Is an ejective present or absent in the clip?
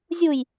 absent